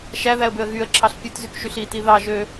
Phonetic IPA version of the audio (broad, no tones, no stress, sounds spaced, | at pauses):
ʃ æ ð æ ə̯ b ø ə̯ ɣ y ə̯ ǁʰ ɑ ɬ pʲ ɯ t z y k ʃ y ɬ i t i ð ɑ ʒ ø